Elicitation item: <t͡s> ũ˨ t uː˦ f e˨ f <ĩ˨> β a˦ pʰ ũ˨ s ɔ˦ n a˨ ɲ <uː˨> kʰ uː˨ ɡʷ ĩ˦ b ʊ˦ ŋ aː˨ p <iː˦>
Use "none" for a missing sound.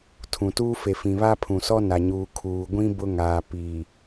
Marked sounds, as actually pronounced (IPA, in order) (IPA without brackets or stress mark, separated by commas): tʰ, ĩ˨, uː˨, iː˨